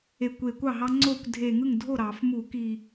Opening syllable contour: low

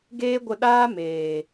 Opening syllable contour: high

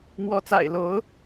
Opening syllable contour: rising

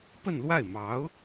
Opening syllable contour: falling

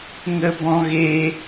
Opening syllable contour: high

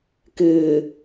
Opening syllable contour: low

